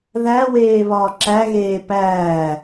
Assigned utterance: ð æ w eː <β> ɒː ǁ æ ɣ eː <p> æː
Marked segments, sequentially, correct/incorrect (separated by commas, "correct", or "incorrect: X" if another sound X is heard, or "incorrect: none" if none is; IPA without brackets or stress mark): correct, correct